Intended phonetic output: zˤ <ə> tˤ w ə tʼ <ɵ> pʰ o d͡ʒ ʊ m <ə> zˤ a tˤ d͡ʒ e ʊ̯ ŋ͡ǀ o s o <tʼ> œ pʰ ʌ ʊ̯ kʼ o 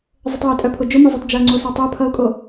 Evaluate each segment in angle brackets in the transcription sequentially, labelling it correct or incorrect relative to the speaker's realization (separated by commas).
correct, incorrect, incorrect, incorrect